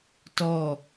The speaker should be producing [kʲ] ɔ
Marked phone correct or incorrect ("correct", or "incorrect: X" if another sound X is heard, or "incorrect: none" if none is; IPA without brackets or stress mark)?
incorrect: t